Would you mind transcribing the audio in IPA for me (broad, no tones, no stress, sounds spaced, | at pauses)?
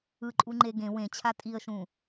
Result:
ɯ ǃʼ u ŋ͡ǃ e ɡ ẽ w ẽ t͡ɕʰ a tʼ i ə̯ ʃ ũ